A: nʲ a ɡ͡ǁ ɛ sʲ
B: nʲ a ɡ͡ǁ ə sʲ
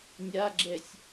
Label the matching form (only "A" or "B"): A